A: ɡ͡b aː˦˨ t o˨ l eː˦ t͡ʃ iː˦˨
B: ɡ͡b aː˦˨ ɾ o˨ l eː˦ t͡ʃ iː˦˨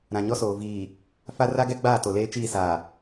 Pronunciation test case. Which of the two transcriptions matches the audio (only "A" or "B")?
A